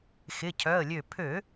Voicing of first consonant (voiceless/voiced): voiceless